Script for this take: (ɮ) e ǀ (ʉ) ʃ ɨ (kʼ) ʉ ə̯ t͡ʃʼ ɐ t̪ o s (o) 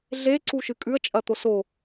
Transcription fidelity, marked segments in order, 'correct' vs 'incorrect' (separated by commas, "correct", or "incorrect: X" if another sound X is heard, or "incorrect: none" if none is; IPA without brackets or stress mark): correct, incorrect: u, correct, correct